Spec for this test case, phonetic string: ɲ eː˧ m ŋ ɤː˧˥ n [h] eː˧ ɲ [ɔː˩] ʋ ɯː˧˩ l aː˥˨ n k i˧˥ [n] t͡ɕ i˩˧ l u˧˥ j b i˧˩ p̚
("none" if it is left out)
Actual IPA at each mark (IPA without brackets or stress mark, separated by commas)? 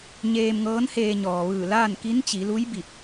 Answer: h, ɔː˩, n